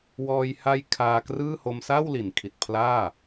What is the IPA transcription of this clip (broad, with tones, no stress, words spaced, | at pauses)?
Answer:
wɔː˧jha˦˥j kʰaː˧krɯː˥˩ ho˧msa˥˩w li˩˦nkʰi˨˩t̚pʰlaː˥˩